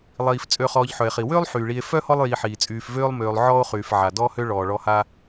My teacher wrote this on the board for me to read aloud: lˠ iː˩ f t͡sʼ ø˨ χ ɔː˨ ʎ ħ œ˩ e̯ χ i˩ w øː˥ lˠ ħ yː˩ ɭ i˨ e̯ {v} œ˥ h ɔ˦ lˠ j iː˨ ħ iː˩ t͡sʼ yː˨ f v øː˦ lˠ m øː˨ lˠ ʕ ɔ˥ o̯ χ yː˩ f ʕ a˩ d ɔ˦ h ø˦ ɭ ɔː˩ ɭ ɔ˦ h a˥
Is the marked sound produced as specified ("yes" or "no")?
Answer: no